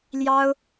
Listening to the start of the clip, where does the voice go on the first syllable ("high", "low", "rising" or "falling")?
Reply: high